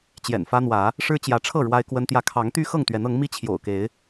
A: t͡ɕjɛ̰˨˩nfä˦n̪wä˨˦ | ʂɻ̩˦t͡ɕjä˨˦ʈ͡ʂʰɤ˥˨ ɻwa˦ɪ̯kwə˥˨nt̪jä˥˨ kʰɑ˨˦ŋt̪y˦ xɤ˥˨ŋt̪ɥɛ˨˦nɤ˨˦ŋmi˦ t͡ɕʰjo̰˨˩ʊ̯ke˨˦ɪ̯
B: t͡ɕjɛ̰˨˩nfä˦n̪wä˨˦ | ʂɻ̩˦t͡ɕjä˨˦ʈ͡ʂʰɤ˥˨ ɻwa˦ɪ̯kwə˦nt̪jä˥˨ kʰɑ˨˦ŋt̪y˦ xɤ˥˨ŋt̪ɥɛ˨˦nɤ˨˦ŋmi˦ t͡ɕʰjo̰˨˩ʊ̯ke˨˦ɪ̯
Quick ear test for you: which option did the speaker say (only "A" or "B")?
B